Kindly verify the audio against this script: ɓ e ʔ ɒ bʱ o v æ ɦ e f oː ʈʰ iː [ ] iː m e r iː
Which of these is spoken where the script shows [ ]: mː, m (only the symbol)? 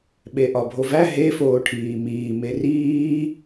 m